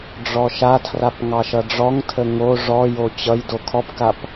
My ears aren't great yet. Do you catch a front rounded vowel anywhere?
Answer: no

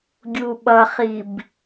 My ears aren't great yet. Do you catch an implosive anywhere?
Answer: yes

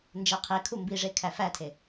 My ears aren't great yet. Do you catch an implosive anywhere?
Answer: no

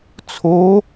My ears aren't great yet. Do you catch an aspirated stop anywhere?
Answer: yes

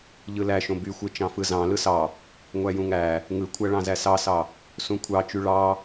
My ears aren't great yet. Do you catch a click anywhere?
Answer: no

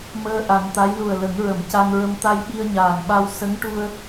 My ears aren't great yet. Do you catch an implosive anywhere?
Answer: yes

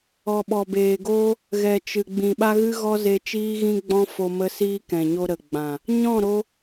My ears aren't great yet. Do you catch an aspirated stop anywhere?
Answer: no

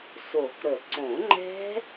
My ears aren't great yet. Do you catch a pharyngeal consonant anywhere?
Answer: no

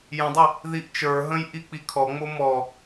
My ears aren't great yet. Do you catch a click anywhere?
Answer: no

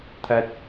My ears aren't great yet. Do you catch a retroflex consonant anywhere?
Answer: no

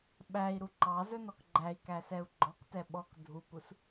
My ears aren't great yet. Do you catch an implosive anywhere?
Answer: yes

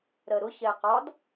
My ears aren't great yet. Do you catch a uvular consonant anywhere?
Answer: yes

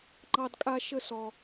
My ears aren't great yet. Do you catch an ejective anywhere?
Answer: yes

